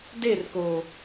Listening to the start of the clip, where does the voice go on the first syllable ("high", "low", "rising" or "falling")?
falling